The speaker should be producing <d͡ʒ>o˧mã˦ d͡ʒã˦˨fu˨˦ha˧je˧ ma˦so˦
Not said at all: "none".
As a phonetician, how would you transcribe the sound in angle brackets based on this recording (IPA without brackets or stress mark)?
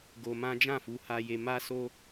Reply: ɡ